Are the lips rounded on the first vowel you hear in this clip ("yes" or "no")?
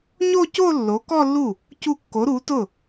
yes